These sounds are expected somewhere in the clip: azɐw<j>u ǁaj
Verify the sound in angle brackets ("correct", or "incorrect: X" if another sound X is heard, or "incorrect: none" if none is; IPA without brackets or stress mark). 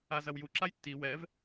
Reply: correct